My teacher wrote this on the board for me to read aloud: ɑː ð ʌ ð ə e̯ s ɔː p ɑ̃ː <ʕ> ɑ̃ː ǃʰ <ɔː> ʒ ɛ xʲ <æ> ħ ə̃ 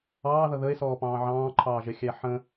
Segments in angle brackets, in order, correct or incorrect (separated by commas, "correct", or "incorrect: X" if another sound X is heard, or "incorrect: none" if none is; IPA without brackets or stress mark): correct, incorrect: ɑː, correct